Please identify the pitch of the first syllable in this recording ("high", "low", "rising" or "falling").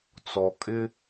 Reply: low